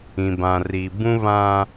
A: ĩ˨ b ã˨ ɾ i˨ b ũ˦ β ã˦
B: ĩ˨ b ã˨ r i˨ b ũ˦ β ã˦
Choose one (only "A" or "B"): B